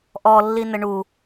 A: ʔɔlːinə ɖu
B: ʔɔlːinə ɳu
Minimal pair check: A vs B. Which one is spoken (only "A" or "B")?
B